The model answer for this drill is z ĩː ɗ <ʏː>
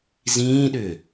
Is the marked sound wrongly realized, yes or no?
no